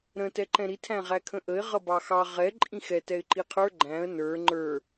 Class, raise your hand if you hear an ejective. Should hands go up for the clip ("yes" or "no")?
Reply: yes